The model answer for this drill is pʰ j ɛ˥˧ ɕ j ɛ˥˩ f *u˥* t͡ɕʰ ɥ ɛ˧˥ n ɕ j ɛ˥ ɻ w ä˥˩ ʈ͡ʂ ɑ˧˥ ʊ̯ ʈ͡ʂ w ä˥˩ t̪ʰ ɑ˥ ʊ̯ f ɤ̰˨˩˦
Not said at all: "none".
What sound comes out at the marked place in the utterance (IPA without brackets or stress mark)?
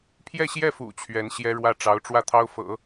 ṵ˨˩